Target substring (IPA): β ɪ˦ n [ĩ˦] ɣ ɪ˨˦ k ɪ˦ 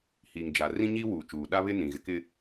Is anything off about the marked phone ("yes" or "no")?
yes